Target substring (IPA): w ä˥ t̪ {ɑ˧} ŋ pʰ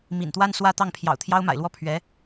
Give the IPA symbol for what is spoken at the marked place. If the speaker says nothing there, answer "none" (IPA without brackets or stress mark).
ɑ˥˩